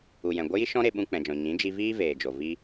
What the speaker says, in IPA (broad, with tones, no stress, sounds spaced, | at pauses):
u˨ j ɛ̃˨ ɡʷ ə˦ j i˦ ʃ ɔ̃˦ ɾ e˧ ɓ ũ˧ k͡p ɛ̃˨ d͡ʒ ɔ̃˨ ɲ ĩ˨˦ d͡ʒ i˧ v iː˦ v eː˨ d͡ʒ o˨ v i˧